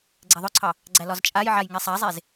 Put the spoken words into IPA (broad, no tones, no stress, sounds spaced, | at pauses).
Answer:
ɡ͡ǀ ɛ ðˤ ʊ ǀʰ ɑ | ɡ͡ǀ æ l ɒ z t͡ʃʼ a j ʕ a j ŋ e sˤ a zˤ e z